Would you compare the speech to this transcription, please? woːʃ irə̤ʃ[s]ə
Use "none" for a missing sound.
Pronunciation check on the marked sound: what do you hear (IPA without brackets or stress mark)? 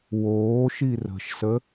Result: s